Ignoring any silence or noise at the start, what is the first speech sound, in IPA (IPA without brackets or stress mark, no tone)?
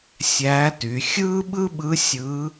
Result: sʲ